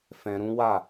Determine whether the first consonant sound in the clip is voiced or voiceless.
voiceless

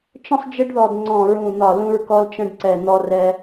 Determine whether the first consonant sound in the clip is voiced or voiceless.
voiceless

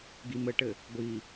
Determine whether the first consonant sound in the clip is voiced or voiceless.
voiced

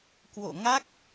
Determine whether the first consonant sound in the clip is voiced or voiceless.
voiceless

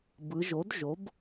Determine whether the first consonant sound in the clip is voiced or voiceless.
voiced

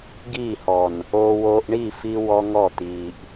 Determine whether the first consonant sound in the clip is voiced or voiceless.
voiced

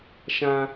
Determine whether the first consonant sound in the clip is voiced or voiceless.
voiceless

